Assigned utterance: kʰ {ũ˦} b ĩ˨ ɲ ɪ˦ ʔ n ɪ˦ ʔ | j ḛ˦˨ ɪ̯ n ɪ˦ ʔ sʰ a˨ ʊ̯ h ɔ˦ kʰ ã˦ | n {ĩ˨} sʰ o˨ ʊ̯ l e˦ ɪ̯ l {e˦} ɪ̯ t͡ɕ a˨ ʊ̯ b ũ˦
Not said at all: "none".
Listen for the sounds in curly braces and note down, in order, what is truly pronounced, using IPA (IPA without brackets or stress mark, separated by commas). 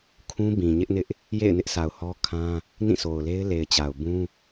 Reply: ũ˦, ĩ˦˨, e˨